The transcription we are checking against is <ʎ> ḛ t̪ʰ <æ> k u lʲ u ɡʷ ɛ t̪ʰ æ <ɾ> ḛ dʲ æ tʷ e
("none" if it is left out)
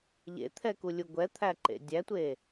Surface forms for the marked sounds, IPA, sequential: ʎ, ɛ, ǃ

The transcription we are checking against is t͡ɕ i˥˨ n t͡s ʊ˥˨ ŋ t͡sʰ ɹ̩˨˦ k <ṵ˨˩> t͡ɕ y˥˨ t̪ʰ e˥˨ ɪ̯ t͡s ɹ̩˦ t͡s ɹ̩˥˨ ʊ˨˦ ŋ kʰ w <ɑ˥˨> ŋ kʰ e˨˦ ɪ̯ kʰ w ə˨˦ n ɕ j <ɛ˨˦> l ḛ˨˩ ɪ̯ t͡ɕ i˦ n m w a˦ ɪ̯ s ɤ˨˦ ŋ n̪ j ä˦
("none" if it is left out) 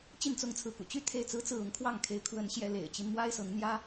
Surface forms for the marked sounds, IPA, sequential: ṵ˨˩, ɑ˥˨, ɛ˨˦

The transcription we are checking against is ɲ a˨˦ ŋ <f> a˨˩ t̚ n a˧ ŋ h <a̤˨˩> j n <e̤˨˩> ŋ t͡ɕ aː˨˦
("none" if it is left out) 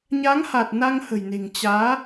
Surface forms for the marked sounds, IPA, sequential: h, ə̤˨˩, e̤˨˩

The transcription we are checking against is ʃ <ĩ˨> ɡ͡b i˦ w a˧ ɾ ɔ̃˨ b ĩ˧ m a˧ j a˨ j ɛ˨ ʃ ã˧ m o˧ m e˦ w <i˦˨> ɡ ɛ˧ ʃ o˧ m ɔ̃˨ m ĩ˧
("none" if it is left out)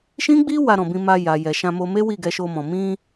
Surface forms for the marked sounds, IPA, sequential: ĩ˦, i˦˨

